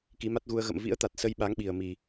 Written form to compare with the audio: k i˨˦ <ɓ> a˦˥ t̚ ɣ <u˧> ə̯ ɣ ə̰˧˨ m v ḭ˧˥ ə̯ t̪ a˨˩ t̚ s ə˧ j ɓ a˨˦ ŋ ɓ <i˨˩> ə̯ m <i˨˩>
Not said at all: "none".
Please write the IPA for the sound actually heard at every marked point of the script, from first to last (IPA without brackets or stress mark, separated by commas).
m, u˧, i˨˩, i˨˩